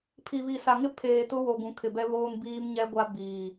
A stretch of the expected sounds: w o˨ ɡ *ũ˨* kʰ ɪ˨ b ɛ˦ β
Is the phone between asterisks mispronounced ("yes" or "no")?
no